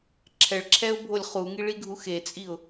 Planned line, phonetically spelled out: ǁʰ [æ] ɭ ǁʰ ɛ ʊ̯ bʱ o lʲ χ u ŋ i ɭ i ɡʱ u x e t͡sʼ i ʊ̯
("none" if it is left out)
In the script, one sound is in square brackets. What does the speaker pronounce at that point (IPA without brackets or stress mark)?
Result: ɛ